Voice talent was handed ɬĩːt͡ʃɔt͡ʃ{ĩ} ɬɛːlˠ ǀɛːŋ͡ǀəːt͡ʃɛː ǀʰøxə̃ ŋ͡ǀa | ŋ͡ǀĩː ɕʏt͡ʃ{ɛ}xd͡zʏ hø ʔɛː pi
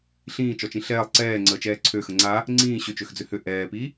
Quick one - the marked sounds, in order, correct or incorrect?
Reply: correct, incorrect: ø

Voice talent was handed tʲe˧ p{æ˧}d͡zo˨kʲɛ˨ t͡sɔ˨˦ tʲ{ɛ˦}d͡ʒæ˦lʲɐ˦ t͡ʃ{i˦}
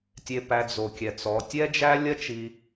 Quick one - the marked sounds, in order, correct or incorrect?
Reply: correct, correct, incorrect: i˧

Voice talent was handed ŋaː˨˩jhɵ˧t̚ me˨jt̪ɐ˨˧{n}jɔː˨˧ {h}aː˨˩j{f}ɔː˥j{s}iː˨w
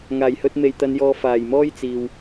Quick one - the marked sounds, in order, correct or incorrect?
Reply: correct, incorrect: f, incorrect: m, incorrect: t͡s

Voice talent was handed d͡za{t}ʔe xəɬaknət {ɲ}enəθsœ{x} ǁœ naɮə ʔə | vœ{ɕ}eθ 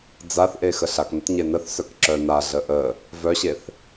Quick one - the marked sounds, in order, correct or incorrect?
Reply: incorrect: θ, correct, incorrect: k, correct

